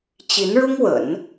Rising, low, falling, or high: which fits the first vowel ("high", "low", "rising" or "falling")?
rising